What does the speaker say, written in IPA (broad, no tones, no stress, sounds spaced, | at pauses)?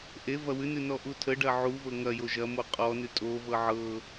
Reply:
ʔ e v ɐ w ʉ n ʉ n ɔ ʔ u tʰ ə ɖ ɐ ʕ u v ɤ ŋ ɐ j o ʒ ɐ m o qʼ ɔ n ʉ tʼ o v ɤ ʕ ɤ